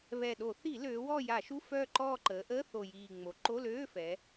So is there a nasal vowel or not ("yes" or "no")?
no